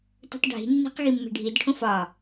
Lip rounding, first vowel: rounded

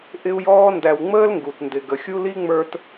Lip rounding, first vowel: unrounded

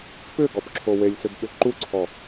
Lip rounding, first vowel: rounded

